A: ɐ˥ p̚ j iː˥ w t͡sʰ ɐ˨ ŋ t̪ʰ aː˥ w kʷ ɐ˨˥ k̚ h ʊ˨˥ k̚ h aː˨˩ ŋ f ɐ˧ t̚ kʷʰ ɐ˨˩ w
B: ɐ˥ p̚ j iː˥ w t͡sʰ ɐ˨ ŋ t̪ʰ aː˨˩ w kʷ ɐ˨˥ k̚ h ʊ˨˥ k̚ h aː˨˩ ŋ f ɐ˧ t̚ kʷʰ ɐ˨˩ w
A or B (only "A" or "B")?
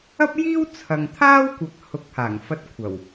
A